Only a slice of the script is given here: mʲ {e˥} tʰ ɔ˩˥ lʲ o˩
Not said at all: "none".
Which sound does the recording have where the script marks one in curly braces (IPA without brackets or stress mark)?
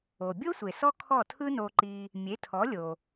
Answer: e˩˥